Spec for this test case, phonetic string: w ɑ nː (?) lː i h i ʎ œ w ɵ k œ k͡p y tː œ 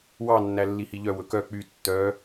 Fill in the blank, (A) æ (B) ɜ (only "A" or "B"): A